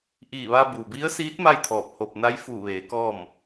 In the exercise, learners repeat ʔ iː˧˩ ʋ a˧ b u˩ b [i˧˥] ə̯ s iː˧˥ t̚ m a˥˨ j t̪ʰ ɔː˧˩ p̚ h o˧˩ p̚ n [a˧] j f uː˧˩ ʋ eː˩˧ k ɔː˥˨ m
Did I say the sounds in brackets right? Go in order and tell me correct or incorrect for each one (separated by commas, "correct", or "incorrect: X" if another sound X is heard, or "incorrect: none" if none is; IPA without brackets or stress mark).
correct, incorrect: a˧˥